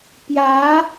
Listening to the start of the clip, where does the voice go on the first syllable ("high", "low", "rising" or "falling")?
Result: rising